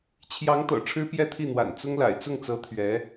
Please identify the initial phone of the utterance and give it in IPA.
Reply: t͡ɕʰ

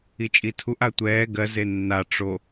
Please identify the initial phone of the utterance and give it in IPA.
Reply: i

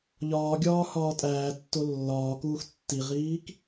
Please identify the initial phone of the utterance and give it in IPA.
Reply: ʎ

